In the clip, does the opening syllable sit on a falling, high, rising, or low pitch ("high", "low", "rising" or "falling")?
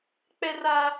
high